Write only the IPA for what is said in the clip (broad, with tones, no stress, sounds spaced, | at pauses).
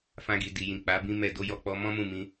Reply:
f ã˧ ɡ i˨ d i˨ j ĩ˨ k͡p a˨˦ b ĩ˦ m ɛ˦˨ d o˧ j ɔ˧ k͡p ɔ˧ m ɔ̃˦ m ũ˦˨ m ĩ˧